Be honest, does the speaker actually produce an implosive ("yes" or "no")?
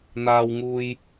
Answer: no